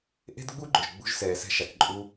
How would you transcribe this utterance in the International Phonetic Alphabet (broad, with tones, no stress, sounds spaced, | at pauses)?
ʔ e̤˦ d ɡ͡b u˦ ɡ͡ǃ ʊ˨ ʒ ɡ͡b ṳ˧ ʒ s ɛː˨ s ɛ̤˧ ʃ a˨ k ǃʼ u˦